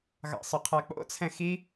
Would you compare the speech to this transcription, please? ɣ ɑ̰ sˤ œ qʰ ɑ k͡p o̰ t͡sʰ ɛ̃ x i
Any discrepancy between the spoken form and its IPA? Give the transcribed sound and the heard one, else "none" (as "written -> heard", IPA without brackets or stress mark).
none